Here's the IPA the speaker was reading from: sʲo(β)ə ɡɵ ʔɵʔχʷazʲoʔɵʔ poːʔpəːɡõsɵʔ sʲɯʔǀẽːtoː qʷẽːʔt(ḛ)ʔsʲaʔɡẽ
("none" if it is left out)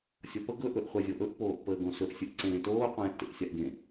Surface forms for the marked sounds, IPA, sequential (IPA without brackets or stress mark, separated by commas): p, ḛ